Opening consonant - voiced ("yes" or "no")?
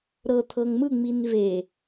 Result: yes